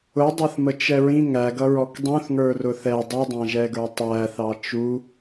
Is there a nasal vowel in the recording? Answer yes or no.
yes